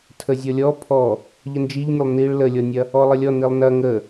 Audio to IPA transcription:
tʰ ə zʲ ɔ lʲ ɔ pʰ ɔ | ʎ ə n d͡ʒ i ʎ nʲ ə lˠ n i ɭ l ə lʲ ɔ nʲ ɐ | ɔ lˠ ə lʲ ɔ n i lˠ n ɐ ŋ ə

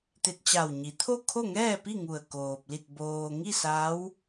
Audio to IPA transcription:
t̪ e˧ t̚ t͡ɕ a˧˩ w ɲ i˩˧ t̪ʰ o˥˨ kʰ o˥˨ ŋ ɛː˥˨ p i˥˨ ŋ u˧˩ ə̯ k oː˧ p̚ l i˥˨ t̚ b oː˧ ŋ i˥˨ s a˧˥ w

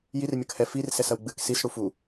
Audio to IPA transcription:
j i r mʲ ɐ k h ɛ f i r s ɛ s ɐ w ɡ͡b ɨ k s i s ɽ u f u

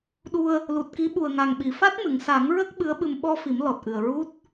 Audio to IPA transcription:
ɗ u˧ ə̯ | l u˨˩ t̚ k i˧˥ ɓ u˨˩ ə̯ ŋ a˨˩ ŋ ɓ i˨˩˨ f a˦˥ t̚ m ɨ˨˩˨ ŋ s a˨˩˦ ŋ ɹ ə˦˥ k̚ ɓ ɨ˧˥ ə̯ ɓ ɨ˧ m ɓ ɔ˧ f i˨˩˦ m l ɔ˨˩ t̚ ʔ ɨ˨˩ ə̯ ɹ u˦˥ t̚

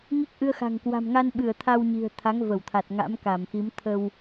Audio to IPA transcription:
ŋ i˦˥ k̚ ʔ ɨ˧ ə̯ x a̤˨˩ ŋ k w a̤˨˩ m ŋ a˧ n ɓ ɨ˧˩ ə̯ t̪ʰ a˧ w ɲ i̤˨˩ ə̯ t̪ʰ a˨˦ ŋ v ə˧˩ w t̪ʰ a˨˩ t̚ ŋ a̰˧˥ m k a˧˩ m x i˨˦ m t̪ʰ ə˧ w

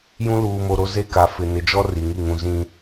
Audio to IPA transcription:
j ũ˦ l uː˨ m o˨ ɾ o˦ z e˦ k a˨ f ɪ˨ n ɪ˨ d͡ʒ ɔ˦ r i˨ ŋ i˦˨ ŋ ũ˨ z ĩ˦

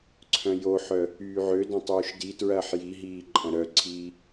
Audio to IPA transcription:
ǀʰ œ̃ j o ħ œ | yː ʕ ø d ɐ̃ tˤ yː ʃ d i t ɹ ɐː ħ j i ɦ iː ǃʼ ɐ̃ ɾ œ ǀʰ iː

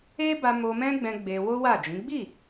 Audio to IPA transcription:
e˦ b a˧ m o˧ m ɛ̃˦ ɡ͡b ɛ̃˧ ɡ͡b e˧ w o˦ w a˦˨ d͡ʒ ĩ˨˦ ɡ͡b i˦˨

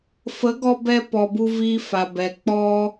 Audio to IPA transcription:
f ə˨˦ ɡ ɔ˧ b ɛ˧ p ɔ˧ b u˦ v iː˦ f a˨ b ɛ˨ k͡p ɔ˦

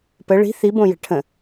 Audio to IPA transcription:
p ə ɭ i̤ θ i b õ j ə̤ ʈʰ ə̃

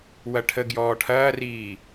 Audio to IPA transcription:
w ɐ ʈʰ ə ɡ j ɔː ʈʰ ɐː r iː

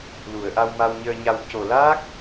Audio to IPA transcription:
l u˨˩˨ ə̯ ʔ a˧ w m a˧ w ɲ əː˧ ɲ a˧ w c o˨˩ l aː˦˥ k̚

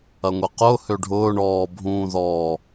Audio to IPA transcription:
ɐ ŋʷ e q ʊː h ø ɖʱ ʊː ɳ ɔː bʱ ũː ð ɔː

